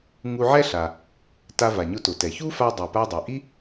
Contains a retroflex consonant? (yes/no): no